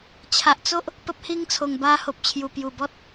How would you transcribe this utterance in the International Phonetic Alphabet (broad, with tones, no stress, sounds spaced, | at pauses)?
t͡ɕʰ a˨ ʔ t͡s o˦ ʔ | p ə˦ p̚ h i˦ ŋ t͡sʰ o˨˩ ŋ b a˧ h o˨ p̚ t͡ɕʰ j u˨˩ p j u˨˩ b ɔ˦ t̚